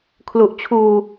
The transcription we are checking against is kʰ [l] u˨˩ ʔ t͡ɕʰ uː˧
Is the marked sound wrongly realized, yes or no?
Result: no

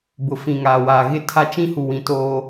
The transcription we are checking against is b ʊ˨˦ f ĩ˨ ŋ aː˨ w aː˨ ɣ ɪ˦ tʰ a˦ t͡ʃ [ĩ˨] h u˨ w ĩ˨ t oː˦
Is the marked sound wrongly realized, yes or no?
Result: yes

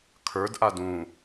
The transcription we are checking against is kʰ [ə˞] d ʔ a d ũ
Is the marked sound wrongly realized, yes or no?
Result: no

